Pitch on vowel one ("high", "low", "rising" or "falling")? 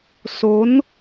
rising